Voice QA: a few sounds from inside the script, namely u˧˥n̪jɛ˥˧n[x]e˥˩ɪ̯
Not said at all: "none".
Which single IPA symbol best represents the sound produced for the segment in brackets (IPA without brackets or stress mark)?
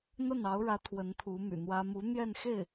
x